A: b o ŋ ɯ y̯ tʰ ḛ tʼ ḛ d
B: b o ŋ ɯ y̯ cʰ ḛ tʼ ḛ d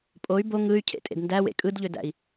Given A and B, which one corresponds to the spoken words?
B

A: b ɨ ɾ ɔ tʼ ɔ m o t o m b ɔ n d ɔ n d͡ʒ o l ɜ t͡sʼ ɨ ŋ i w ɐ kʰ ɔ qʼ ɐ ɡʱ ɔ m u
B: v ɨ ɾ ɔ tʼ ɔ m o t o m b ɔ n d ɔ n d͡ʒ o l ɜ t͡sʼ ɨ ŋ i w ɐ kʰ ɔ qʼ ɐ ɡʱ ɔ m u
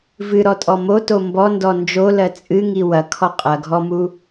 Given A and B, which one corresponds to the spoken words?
B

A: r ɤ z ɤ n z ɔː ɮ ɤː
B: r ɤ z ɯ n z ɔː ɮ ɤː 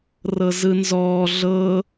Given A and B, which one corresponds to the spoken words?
B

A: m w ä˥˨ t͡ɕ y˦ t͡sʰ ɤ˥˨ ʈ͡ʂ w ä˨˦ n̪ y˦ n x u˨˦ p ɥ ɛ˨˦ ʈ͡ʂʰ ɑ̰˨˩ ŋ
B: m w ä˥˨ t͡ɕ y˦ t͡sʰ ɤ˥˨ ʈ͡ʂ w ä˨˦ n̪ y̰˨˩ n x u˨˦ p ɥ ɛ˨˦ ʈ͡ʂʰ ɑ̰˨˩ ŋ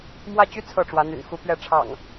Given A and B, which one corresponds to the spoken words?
B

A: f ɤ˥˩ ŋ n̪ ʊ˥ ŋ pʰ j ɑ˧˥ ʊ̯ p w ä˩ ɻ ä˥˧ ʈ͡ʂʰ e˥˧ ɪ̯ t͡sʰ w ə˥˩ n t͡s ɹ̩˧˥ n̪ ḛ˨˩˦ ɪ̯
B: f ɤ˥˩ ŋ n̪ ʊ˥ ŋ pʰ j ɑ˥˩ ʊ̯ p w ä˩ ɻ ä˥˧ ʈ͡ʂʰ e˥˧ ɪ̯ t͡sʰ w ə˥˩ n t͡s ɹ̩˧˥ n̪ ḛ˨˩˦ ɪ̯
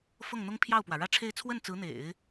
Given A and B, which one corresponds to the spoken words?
B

